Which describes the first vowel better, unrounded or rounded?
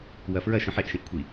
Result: unrounded